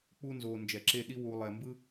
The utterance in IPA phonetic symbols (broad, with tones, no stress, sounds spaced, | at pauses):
k͡p u˥ n z oː˧ n d͡ʒ ɛ˧˩ ǁ e˥˧ ɗ i˥ w u˧ lˠ ɛ˧ m b ɯ˥